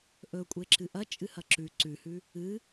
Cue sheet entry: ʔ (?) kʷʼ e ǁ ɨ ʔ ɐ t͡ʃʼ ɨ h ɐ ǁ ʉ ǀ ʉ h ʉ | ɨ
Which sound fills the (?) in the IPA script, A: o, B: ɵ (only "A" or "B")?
B